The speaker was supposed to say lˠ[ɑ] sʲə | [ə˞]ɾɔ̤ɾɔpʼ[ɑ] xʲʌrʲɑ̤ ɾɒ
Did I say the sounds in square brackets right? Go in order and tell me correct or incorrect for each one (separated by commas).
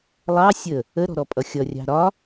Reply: correct, incorrect, incorrect